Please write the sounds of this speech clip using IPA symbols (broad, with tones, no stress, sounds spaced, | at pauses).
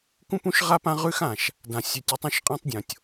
k ũ˦ p ũ˦ ʃ ʁ a˦ p ã˦ ʁ ʉ˦ x ã˨ ʃ | d ã˨ sʲ ʉ˨ tʲ ʉ˨˦ tˤ ũ˦˨ ʃ qʼ ã˦ tˤ dʲ õ˨ tʲ